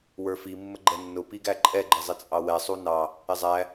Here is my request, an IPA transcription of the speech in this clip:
w ə˞ f i mː ə ɡ͡ǃ ɛ nː ʊ p i ɡ æ ǃʼ ɛ ɡ͡ǃ ɪ zˤ ɪ t͡sʼ ɑ w ɛ sˤ u n ɑ | ɪ zˤ æ

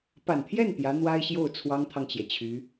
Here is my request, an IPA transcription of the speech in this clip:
p a˨˩ n t̪ʰ j ɛ˥˩ n t̪ j ä˧˥ n̪ w a˥ ɪ̯ ɕ j o˥˩ ʊ̯ t͡sʰ w ɑ˥ ŋ t̪ʰ ɑ˨ ŋ t͡ɕ j ɛ˩ t͡ɕʰ y˧˥

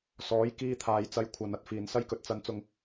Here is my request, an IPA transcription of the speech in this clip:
s ɔː˨˥ j k iː˧ t̪ʰ aː˨ j t͡s ɐ˧ j kʷʰ ɐ˨˧ n ɐ˨˥ t̚ f iː˨ n s ɐ˥ j k ɵ˧ t̚ t͡s ɐ˥ n t͡s ʊ˥ ŋ

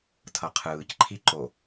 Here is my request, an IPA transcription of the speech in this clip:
tʰ ʌ qʰ ɯː c ǃʰ i ǃ o

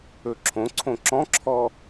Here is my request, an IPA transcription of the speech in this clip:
ɵ ǁʰ õ ǀʰ õ ǁ ɔ̃ ǁʰ ɔ

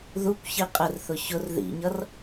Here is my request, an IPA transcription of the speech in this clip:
ð u kʷ ç i qʼ ɪ r θ ʊ ç ʊ r ð ḭ ɲ ʌ r

